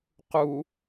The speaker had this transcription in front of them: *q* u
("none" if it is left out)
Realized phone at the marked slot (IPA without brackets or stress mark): q